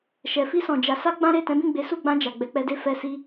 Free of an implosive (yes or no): yes